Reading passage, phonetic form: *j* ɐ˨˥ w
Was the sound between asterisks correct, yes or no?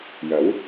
yes